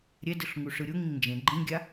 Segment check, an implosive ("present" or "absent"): absent